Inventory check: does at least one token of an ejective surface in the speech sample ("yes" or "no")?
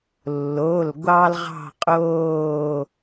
yes